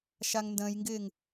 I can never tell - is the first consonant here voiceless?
yes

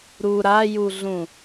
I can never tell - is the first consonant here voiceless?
no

